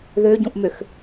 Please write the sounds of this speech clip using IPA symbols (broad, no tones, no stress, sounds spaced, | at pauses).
ð ø ɟ ũ ʔ m ø x